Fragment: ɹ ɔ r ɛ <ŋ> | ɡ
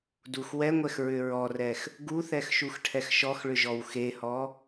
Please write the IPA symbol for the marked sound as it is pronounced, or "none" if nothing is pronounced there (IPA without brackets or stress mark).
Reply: x